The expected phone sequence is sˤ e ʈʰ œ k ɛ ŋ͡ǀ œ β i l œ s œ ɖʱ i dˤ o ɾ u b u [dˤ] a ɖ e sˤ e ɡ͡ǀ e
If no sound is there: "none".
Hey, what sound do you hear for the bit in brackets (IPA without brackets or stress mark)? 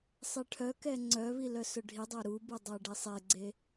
dˤ